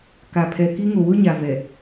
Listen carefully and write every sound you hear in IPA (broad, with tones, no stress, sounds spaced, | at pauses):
k a˨ pʰ ɛ˨ k i˦ ŋ o˨ w ʊ˦ ɲ a˨ v ɛ˨